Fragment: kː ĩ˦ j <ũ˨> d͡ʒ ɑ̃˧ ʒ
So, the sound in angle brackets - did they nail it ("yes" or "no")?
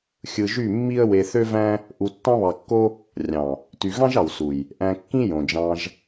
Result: no